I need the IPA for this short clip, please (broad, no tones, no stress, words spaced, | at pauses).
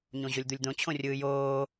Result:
ɲõʑolʲd̪ulʲd̪õ t͡ɕʰõrʲɯːjoː